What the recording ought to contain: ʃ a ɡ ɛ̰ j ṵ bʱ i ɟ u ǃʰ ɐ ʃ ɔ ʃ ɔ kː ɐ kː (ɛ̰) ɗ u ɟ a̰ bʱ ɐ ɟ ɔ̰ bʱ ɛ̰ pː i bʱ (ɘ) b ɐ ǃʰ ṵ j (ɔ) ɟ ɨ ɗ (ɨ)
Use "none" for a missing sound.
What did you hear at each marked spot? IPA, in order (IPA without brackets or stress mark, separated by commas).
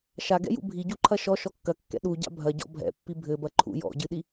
ɛ̰, ɘ, ɔ̰, i